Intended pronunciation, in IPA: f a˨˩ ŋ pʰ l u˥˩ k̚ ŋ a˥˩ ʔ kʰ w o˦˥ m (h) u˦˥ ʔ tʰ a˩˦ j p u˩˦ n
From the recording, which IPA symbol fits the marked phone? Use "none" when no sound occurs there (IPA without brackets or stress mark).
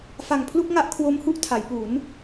h